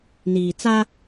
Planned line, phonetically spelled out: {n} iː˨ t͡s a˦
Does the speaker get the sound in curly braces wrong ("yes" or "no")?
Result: no